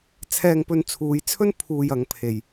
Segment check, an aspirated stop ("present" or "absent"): present